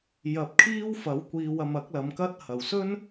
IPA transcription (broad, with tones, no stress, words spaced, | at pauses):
jɐ˨˥p̚kʰiː˥wfɐ˨˥w kʷiː˧wɐ˧m ɐ˨˥k̚lɐ˨˧mkɐ˥t̚hɐ˨w sɵ˥n